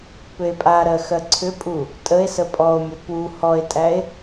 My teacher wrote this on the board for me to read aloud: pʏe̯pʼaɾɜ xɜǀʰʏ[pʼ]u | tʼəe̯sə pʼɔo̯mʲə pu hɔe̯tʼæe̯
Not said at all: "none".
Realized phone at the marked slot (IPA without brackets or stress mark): pʼ